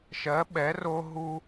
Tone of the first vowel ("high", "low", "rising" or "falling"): rising